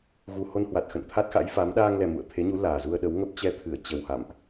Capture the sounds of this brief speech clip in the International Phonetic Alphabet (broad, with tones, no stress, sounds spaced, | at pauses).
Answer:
ɣ u˨˩ h o˧ n h w a˨˩ t̚ x ə̰˧˨ n t̪ʰ a˦˥ t̚ x a̰˧˥ j f a˨˦ m ɗ aː˧ ŋ l ɛ˨˩ m ṵ˧˨ ə̯ t̪ʰ e˨˦ ɲ u˨˦ l aː˨˩ z u˧ ə̯ ɗ ə˨˦ w ŋ ə˦˥ p̚ t͡ɕ ɛ˧ t̪ʰ ɨ˧˩ ə̯ t͡ɕ ə˨˩ w h a̰˧˨ m ʔ